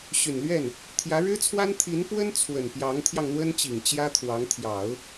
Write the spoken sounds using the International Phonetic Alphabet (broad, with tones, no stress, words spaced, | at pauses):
ɕy˨˩nlɥɛ˥˩n | t̪ʰjä˧˥ɻɻ̩˥t͡sʰwa˥n t̪ʰi˧˥npwə˥n t͡sʰwə˨˩n pjɑ˧˥ŋt̪ʰjɑ˧ŋn̪wə˥nt͡ɕi˨˩ŋ t͡ɕjä˥t̪ʰwɑ˧˥ŋ t̪ʰjɑ˨˩˦ʊ̯